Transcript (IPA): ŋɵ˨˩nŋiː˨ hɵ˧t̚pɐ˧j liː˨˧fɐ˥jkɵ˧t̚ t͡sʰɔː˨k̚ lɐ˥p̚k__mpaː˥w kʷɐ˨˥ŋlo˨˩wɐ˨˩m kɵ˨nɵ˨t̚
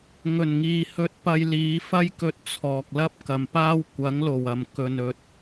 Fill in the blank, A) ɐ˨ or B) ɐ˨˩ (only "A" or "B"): A